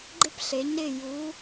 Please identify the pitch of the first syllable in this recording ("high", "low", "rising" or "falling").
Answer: high